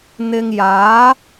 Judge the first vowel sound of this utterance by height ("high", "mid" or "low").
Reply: high